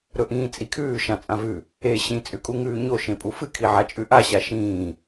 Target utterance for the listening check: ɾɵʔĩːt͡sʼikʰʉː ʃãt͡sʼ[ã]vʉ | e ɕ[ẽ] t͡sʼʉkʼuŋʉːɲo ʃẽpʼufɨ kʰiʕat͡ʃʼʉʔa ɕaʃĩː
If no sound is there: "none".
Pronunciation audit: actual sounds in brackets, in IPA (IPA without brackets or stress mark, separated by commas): ã, ĩ